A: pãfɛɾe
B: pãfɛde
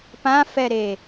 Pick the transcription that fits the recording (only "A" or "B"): A